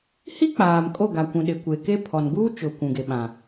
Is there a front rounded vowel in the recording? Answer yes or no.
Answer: no